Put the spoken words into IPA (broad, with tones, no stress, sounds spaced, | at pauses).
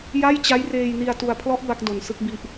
j a˥˩ j t͡ɕ a˦˥ j r eː˧ j n i˧ a̯ t u˧ a̯ pʰ l ɔ˦˥ ʔ b a˦˥ k̚ d o˧ n s ɯ˥˩ k̚ b i˦˥ ʔ